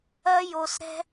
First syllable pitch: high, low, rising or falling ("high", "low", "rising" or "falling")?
high